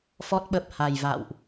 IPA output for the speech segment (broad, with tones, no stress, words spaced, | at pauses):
fɔ˦˥t̚ɓə˨˩p̚ha˨˩jva̰˧˨wʔ